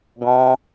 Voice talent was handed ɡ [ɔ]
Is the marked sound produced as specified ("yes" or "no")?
no